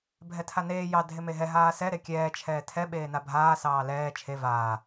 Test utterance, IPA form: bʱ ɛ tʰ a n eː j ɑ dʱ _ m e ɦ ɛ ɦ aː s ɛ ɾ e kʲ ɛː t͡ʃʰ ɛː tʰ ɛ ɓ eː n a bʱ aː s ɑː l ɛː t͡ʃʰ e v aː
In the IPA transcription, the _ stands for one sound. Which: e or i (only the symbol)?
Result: e